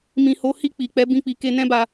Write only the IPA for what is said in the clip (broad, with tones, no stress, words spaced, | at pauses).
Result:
mĩ˨ho˨˦hi˦˨ k͡pi˨ k͡pɛ˨˦ bĩ˦˨k͡pi˨˦ ke˧nɛ̃˦ba˧